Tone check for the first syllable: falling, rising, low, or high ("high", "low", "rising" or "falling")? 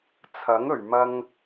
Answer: rising